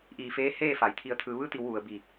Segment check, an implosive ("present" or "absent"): absent